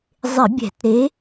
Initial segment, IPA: zˤ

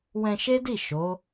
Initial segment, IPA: w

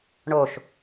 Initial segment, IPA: ɳ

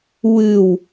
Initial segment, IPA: w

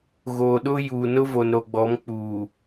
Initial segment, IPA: ɣ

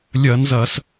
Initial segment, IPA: lʲ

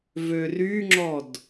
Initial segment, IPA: v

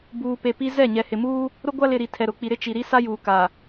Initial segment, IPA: b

